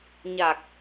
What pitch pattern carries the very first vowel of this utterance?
low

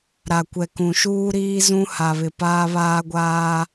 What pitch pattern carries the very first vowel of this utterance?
low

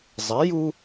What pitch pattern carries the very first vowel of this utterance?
rising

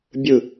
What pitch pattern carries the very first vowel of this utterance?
falling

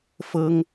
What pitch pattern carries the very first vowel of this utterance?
high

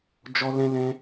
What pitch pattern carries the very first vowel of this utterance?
high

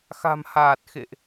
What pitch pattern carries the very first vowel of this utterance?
low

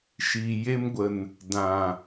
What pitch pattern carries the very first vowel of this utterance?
low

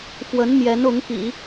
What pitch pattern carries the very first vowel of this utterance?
rising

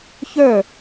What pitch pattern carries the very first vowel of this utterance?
falling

